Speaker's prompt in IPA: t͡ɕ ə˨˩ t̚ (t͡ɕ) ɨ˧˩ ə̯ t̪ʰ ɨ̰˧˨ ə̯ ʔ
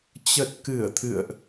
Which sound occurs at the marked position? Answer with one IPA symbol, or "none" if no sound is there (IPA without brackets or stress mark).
k